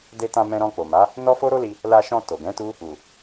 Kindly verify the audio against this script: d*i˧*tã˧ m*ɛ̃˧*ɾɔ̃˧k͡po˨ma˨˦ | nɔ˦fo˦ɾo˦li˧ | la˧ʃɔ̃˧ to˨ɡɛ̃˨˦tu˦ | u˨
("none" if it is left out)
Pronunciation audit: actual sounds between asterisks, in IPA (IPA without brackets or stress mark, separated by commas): e˧, ɛ̃˧